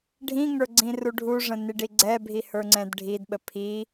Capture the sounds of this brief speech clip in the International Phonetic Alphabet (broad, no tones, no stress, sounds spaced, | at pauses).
ɖʱ ĩ ŋ ə˞ ɡ͡ǀ ĩ r u ɖʱ u ʐ ə̃ n i ɖ i ɡ͡ǀ ɛ bʱ i h ə˞ ŋ͡ǀ ɛ̃ d ɖʱ i d ɓ ə pʰ i